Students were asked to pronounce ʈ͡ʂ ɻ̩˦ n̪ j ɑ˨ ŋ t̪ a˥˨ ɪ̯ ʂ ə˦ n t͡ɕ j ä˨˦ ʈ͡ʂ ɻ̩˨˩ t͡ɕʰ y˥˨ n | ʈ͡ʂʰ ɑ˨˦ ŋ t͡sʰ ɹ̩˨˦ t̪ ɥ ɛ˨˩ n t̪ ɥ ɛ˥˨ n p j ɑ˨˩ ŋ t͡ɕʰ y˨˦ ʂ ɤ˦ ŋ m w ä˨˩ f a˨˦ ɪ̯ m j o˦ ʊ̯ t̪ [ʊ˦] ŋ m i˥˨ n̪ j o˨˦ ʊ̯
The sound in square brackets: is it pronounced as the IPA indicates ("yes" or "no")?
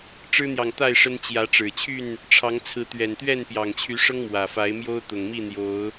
no